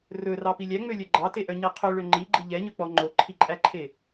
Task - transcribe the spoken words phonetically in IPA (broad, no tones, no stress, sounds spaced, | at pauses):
r ɵ r ɑ p i lʲ æ ŋ͡m ø lʲ œ ɡ͡ǃ ɑ t e ʔ œ ɲ e qʰ ɵ ɭ ø ŋ͡ǃ i ɡ͡ǃ i ʎ ɛ ɲ ɵ k͡p ɔ ŋ͡ǃ o ǃʰ i ǃʼ æ ǃʰ e